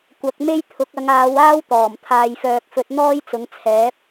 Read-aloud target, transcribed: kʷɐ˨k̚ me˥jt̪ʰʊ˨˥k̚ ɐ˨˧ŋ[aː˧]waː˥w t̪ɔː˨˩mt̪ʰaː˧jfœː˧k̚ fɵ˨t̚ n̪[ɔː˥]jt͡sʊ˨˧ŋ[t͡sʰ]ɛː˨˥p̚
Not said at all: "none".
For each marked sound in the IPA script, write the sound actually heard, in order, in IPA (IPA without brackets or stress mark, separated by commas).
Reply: aː˨˧, ɔː˥, t͡sʰ